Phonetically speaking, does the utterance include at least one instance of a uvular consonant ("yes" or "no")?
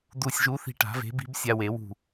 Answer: no